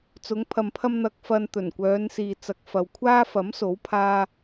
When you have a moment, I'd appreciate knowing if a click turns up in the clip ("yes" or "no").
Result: no